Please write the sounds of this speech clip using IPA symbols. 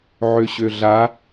ʕ ø ɕ ø ɮ a

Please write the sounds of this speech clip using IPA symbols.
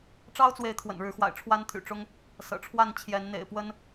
ʈ͡ʂ ɑ˦ ʊ̯ t͡s w e˨˦ ɪ̯ t̪ʰ w ə̰˨˩ n ɻ ɻ̩˨˦ x w a̰˨˩ ɪ̯ ʈ͡ʂʰ w a˦ n t̪ʰ y̰˨˩ ʈ͡ʂ ʊ˦ ŋ | s ɤ̰˨˩ ʈ͡ʂʰ w a˥˨ n t͡ɕʰ j ɛ˨˦ n n̪ ḛ˨˩ ɪ̯ p w ə˦ n

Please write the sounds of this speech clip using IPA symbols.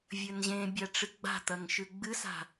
vʲ ɵ n ʑ ẽ bʲ a ʈ͡ʂ ɨ ɡ͡b a̤ t̪ ɐ ŋ ʃ ʉ ɡ͡b ɨ s a̤

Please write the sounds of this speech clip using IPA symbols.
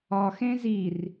ɒ x ẽ z i r

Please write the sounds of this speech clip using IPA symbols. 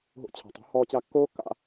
ɦ o̰˧ t͡ɕʰ a̤˨ tˤ o̤˨˦ h ɔː˧ t͡ɕ a˧ kː oː˦ kː a̰˧

